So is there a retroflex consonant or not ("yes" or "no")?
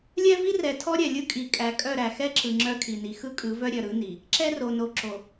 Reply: no